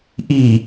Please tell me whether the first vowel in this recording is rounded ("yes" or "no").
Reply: no